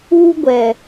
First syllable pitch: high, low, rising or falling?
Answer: high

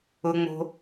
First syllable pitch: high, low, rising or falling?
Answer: low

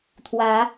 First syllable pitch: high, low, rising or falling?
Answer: rising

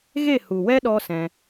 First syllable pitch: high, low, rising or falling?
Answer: falling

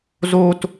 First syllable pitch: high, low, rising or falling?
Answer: high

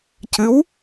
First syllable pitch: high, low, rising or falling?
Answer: rising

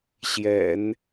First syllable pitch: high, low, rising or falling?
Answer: low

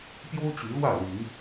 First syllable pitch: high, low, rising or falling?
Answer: high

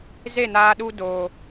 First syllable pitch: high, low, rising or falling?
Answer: falling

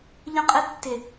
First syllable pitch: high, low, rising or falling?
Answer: high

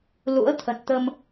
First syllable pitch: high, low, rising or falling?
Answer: rising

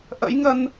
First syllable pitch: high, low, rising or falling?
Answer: rising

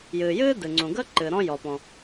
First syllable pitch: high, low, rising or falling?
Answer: low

